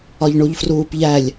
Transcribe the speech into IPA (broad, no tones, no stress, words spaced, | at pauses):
ɒʎɳuʎfruːpʎælʲ